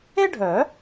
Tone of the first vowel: high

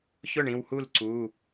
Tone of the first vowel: falling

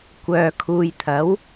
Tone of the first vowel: low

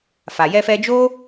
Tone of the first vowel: low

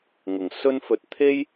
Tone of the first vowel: low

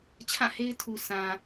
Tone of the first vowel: falling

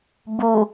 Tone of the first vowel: low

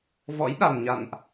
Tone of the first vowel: rising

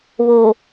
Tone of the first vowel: low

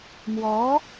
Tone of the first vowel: rising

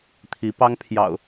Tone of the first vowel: rising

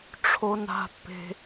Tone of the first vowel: high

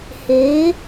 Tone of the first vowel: rising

